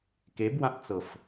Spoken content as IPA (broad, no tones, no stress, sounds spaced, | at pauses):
k e b w ã ʔ t͡s ɤ f